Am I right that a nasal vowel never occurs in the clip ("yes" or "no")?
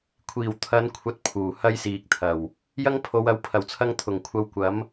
yes